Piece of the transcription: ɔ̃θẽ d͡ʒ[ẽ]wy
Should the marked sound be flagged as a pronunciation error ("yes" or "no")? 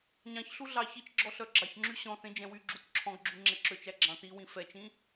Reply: yes